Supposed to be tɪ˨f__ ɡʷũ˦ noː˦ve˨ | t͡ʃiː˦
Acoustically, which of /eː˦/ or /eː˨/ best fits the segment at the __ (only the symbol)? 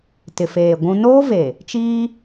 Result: eː˨